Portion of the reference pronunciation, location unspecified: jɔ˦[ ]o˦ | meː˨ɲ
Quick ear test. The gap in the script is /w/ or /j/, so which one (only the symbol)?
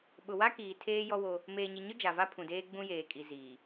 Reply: w